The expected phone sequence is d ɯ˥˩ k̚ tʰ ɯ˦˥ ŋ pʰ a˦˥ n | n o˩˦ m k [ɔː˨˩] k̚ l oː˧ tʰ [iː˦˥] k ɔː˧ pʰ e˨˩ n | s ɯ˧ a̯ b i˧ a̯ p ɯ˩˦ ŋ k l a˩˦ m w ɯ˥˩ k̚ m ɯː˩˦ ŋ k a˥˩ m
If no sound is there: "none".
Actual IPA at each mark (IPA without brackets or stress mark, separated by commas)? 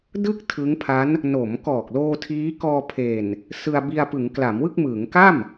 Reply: ɔː˨˩, iː˦˥